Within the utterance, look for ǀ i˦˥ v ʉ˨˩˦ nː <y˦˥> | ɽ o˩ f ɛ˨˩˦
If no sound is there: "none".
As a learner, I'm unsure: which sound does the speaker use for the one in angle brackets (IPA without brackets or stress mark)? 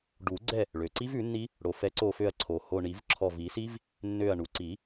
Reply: i˦˥